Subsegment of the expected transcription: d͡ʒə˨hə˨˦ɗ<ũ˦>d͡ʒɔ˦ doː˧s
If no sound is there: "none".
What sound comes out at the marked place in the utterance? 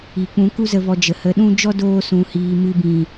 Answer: ũ˦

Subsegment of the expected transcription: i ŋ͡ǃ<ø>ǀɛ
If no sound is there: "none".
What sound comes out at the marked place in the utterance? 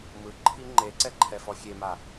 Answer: e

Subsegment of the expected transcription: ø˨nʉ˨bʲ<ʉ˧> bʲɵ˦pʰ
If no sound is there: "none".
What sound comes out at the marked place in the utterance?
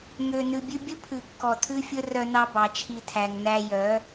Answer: ʉ˧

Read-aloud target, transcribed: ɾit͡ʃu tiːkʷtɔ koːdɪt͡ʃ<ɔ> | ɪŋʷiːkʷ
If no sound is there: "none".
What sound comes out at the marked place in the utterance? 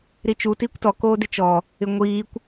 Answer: ɔ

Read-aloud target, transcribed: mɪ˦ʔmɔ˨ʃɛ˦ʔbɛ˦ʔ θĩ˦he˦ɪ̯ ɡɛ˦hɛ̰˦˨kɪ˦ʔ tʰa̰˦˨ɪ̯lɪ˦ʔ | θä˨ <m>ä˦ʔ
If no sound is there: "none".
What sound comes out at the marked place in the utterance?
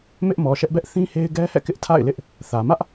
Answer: m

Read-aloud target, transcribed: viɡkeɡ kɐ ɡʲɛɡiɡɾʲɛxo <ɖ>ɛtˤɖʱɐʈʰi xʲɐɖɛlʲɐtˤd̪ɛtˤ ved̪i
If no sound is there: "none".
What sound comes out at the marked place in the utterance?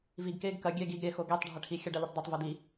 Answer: ɡ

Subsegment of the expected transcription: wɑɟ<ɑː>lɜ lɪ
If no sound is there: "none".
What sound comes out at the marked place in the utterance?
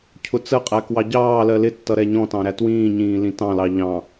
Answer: ɑː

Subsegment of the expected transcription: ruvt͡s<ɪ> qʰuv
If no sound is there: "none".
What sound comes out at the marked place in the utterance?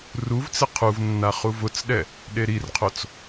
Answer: ɪ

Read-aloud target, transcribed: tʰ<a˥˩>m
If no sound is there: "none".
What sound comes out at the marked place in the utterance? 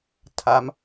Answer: a˦˥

